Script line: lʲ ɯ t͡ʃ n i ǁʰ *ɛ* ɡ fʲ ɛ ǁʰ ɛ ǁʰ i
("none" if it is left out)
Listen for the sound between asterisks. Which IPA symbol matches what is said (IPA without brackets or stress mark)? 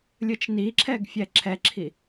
ɛ